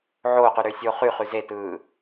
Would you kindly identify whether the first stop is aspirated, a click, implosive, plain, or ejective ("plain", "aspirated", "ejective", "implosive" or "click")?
plain